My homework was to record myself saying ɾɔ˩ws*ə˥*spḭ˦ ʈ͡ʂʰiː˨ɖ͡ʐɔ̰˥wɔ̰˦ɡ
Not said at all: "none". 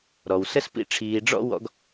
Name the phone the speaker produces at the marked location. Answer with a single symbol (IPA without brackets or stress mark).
ə˥